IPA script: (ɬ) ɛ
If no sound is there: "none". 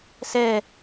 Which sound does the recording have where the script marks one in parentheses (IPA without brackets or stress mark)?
s